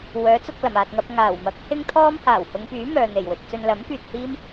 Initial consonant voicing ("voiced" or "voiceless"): voiced